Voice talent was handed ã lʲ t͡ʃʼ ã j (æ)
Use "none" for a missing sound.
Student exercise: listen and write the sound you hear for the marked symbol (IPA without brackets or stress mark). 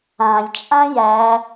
æ